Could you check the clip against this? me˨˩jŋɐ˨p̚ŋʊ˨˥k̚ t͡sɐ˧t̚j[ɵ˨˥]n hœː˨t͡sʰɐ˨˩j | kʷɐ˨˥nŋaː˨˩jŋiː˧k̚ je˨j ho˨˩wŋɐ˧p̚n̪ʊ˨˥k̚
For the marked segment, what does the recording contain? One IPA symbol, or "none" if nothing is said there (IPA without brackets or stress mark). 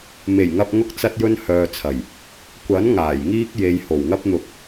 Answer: ɵ˧